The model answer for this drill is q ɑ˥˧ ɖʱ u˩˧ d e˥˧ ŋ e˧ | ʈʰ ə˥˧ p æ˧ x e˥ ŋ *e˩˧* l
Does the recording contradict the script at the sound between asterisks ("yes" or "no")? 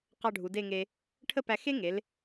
no